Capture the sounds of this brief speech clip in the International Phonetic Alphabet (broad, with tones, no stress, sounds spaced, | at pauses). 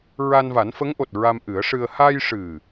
ɹ a˧ n v a˨˩˦ n f ə˧˥ ŋ ʔ o˨˩ t̚ ɹ a˧ m ʔ ɨ˨˩˦ ə̯ ʂ ɨ˧ ə̯ h a˧ j ʂ ɨ˨˩